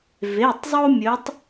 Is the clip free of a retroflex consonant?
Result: yes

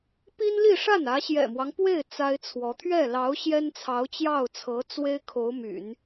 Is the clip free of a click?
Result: yes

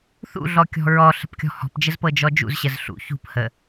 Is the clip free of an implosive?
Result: yes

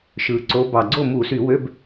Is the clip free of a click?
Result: no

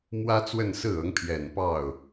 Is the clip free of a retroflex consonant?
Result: yes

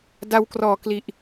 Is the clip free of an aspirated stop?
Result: yes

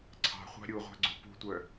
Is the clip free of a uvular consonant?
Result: no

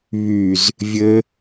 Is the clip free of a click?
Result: yes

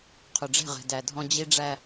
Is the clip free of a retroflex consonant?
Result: no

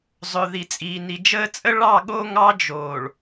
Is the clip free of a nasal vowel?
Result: yes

